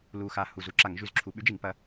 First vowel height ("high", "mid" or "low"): high